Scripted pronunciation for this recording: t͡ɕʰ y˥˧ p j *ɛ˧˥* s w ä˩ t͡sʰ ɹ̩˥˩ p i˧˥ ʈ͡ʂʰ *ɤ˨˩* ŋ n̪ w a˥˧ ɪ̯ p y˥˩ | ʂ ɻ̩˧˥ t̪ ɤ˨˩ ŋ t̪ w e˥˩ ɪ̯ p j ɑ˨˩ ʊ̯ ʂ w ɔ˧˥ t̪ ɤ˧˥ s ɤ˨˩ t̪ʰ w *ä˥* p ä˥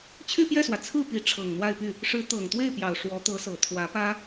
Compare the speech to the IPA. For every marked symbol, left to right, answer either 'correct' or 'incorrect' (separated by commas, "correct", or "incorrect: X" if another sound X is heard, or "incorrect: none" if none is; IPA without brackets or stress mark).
incorrect: ɛ˥˩, correct, incorrect: ä˧˥